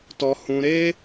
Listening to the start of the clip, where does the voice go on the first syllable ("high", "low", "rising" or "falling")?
high